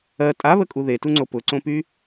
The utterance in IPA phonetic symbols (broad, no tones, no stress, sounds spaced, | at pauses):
ɜ tʼ a β ə kʼ u ð e t u ŋ͡ǀ o p ʊ ǀ õ p y